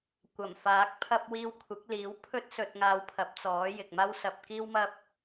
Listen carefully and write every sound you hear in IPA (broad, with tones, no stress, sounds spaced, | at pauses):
kʷ ɐ˨˩ m f aː˨˥ k̚ pʰ ɐ˥ p̚ w iː˧ w kʷʰ ɪ˨˥ k̚ l iː˨˥ w pʰ ɵ˥ t̚ s ɵ˧ t̚ ŋ aː˧ w pʰ ɐ˨˥ p̚ t͡s ɔː˨˥ j ɪ˨ k̚ m aː˥ w s ɐ˧ p̚ k iː˥ w m ɐ˥ p̚